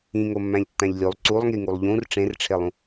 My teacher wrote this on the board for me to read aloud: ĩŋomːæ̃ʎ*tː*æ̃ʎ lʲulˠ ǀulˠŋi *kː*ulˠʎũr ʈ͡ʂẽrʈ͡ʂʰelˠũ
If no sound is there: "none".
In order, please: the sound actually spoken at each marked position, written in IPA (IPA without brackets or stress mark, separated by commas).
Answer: tː, ŋ